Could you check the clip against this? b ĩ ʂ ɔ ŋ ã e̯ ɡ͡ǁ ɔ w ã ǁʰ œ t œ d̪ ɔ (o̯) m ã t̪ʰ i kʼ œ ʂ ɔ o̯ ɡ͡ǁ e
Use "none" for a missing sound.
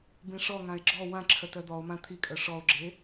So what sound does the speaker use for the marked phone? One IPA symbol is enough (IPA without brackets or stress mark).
o̯